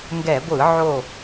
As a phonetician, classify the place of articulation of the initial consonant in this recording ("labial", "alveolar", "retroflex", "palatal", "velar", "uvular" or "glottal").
velar